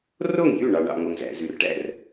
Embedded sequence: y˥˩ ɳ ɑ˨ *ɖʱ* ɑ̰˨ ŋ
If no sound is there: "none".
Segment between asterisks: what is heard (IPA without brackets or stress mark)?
ɳ